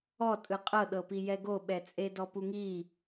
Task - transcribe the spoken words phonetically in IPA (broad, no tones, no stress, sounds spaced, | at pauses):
ɔ tʼ ɯ qʼ ɤ ɗ ɤ p i j ɛ ɡ o ɓ ɛ t͡sʼ e d ɔ p u ŋ i